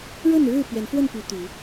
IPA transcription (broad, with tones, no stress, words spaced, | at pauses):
ɻə˥˨nɻɻ̩˥˨ pɥɛ˨˦nfwə˥˨npy˨˦ t̪y˨˦